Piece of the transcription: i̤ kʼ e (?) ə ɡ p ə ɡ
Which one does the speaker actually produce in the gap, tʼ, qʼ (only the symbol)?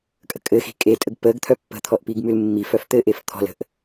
tʼ